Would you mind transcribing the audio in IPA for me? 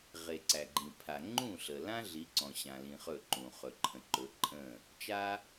ʁ e˩ ǀ æ˩ ɡ͡ǃ ĩ˩ pʰ a˩ ŋ͡ǃ ũ˥˩ ɬ ə˩ l ã˥ ɮ i˩˥ ǀ ɔ̃˩ ɕ ã˩ l ĩ˩ χ ɵ˥˩ ǃ ũ˩ χ ɵ˩ ǃʰ ə̃˩ ǃ ɵ˩˥ ǃʼ ə̃˥˩ | t͡ʃ a˥

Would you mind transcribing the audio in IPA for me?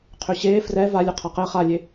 qʰ ø ɕ eː f r ɛ v a lʲ œ qʰ a q ɛ χ a lʲ e

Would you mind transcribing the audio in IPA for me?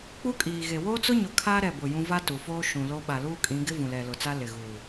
k͡p u˦ kʼ iː˨ ɣ e˨ w oː˦ t͡s ʊ˦ ɲ ʊ˨ kʰ aː˦ ɾ ɛ˦˨ b ʊ˦˨ j ũ˦ v a˦ t u˨ f oː˦ ʃ ũ˨ l o˦ ɓ a˨ l uː˦ kʼ ĩ˨˦ ɡ ɪ˦ v ũ˨ l ɛ˨ l ʊ˨ t͡s a˦ l ɪ˨ ɣ uː˨

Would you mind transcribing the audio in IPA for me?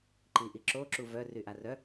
ǃ i ʔ i ǁ o ǁ u v œ r y ʔ a r œ

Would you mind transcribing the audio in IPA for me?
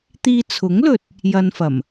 t̪ iː˧ t͡sʰ ʊ˨˥ ŋ l ɵ˨ t̚ | j ɐ˧ n f ɐ˨˩ m

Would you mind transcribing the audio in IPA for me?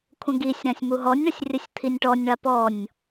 kʷʰ ə̃ ɡ i sʲ ɾ ã sʲ m u ɦ ɔ nʲ ɳ ə sʲ rʲ ə sʲ t̪ʰ i nʲ ʈ ɔ nʲ ɳ a p ɔ nʲ

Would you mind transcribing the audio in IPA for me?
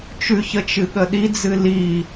t͡ʃ ʉ ç ə t͡ʃ ɨ ɠ ə ɗ i d͡z ɨ l i

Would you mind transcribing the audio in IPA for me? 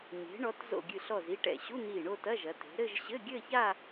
ɲ e̤˩˧ ɳ ɔ˩˧ t z o̰˧˩ ɡʲ ɨ˧˩ ɬ ɔ˧˩ z i˥˧ ʈ ɛ̰˧˩ ɕ u˧˥˧ n̪ iː˧˩ ɳ o˥˧ t ɐ˧˥˧ ʒ ɐ˩˧ t e̤˩˧ ɾ ɘ˥˧ ʒ ɕ ɘ˧˥˧ ɡʲ ɘ˥˧ ç a˥˧

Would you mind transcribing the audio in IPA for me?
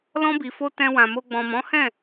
l ɔ̃˧ b i˨ f o˧ t ɛ̃˧ w ã˨ m o˧ ɡ͡b ɔ̃˨ m ɔ̃˨˦ h ɛ̃˦˨

